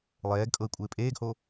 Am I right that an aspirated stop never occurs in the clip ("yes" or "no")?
yes